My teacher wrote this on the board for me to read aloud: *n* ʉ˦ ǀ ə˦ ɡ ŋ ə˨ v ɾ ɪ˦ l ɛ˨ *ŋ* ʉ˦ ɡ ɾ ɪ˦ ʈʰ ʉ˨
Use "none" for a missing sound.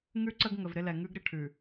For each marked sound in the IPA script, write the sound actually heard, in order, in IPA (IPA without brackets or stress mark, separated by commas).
ŋ, ŋ